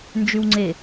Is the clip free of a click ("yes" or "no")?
no